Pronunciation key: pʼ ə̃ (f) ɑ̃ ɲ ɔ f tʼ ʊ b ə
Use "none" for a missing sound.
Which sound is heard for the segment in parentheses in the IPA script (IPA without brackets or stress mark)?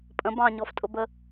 b